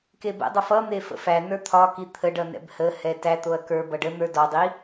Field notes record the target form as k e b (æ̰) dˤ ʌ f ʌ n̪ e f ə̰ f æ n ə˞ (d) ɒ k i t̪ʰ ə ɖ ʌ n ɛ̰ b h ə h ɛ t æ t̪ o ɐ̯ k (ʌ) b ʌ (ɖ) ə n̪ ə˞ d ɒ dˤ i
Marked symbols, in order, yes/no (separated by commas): no, no, no, yes